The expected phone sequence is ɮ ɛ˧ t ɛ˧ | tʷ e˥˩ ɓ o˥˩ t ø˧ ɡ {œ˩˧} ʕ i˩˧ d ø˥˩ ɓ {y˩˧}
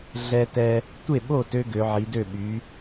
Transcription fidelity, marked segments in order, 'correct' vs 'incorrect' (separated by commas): incorrect, correct